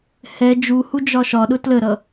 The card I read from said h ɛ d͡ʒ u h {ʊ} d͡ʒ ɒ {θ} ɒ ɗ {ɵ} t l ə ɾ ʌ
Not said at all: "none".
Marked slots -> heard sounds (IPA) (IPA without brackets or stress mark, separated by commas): u, ʃ, ʊ